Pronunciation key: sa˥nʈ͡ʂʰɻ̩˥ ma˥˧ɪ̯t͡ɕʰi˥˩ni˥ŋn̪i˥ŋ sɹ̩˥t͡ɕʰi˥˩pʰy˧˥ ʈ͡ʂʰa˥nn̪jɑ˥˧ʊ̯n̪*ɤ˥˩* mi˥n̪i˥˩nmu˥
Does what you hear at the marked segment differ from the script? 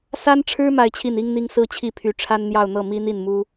no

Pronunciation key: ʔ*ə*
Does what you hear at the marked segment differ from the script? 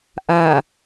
yes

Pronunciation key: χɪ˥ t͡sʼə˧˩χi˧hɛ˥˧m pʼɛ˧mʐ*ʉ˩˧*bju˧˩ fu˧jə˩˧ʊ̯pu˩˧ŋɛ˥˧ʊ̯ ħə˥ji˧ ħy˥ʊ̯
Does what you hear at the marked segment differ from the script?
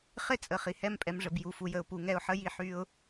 yes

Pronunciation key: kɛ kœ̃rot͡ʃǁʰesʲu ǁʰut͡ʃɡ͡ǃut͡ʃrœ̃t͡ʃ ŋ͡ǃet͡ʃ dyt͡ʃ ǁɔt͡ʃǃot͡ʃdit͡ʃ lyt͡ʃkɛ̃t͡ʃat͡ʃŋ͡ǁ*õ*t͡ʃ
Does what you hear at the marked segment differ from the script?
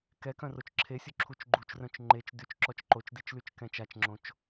no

